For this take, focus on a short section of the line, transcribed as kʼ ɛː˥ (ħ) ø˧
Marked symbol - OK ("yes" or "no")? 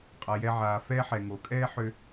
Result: yes